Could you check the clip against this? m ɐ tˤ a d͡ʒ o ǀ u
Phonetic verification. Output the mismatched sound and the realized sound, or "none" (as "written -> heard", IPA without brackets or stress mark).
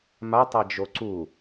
ɐ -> a